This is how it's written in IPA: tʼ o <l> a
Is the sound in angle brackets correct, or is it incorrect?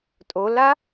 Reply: correct